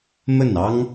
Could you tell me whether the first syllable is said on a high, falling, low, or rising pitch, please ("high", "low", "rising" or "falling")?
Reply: falling